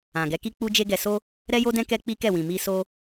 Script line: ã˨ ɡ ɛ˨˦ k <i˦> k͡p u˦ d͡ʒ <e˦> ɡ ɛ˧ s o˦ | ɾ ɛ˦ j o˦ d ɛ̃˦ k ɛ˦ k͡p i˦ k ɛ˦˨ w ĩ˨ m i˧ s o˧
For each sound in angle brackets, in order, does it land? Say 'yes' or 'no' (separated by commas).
yes, yes